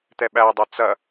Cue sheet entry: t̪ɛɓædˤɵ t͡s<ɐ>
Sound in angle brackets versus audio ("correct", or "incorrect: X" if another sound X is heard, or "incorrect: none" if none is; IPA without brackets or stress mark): correct